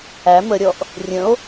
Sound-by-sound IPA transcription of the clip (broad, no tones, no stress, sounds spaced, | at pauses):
æ m ə ɾʲ ɔ ʔ | rʲ ə̃ o̯